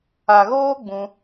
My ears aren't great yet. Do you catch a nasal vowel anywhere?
yes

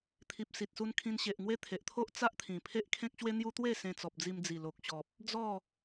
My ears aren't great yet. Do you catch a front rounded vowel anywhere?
no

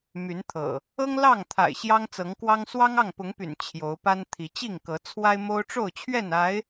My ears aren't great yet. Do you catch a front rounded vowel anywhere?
yes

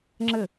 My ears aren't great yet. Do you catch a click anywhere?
yes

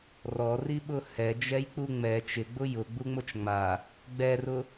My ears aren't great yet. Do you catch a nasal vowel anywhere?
no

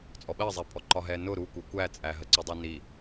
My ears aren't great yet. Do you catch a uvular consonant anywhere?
no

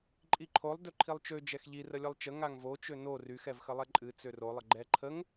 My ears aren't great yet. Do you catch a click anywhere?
yes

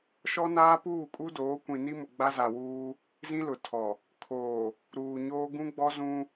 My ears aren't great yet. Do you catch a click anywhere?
no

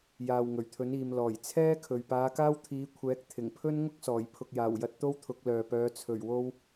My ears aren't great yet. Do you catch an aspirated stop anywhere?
yes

